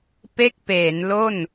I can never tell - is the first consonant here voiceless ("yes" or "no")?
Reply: yes